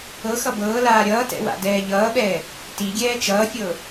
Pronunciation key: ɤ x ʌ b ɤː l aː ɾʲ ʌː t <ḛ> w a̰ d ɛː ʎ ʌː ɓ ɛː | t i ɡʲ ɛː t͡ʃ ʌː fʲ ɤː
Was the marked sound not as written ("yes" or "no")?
yes